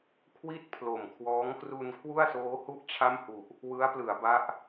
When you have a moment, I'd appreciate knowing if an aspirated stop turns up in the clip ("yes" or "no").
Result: yes